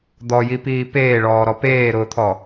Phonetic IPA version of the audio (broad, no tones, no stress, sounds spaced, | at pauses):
d̪ ɔ j i p iː p eː ɭ ɔː ɾ ɔ p eː ɾ ʊː t̪ʰ ɔ